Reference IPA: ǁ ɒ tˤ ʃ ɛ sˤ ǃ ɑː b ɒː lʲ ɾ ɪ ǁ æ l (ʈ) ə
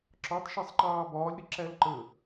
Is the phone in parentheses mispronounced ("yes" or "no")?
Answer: yes